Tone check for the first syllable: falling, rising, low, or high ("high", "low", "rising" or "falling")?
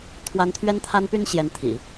high